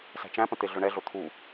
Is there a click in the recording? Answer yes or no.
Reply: no